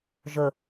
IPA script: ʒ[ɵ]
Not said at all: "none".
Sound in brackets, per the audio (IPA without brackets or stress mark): ɵ